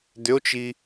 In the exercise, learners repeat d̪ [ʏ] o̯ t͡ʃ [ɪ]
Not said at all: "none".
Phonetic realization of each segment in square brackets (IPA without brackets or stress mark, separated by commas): ʏ, i